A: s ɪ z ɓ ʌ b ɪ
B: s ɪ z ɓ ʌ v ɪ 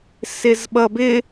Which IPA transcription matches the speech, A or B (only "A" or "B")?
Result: A